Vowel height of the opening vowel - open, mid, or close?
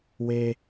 mid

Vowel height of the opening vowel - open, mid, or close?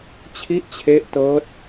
close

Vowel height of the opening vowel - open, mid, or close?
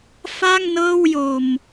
open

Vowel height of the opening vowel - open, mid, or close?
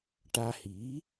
open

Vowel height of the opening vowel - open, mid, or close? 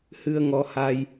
close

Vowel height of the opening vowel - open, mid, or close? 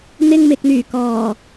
close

